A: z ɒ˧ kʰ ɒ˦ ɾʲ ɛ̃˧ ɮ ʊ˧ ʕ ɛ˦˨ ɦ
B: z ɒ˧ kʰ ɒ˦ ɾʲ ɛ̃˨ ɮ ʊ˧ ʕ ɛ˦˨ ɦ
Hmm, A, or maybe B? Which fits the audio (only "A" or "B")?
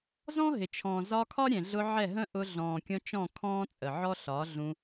B